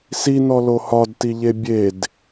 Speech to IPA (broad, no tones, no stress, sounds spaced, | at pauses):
s i n ɔ l o h ɒ d t i ʎ e bʲ e d